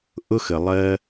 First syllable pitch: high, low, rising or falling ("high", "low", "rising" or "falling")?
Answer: high